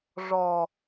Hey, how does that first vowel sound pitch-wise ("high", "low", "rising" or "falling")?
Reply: low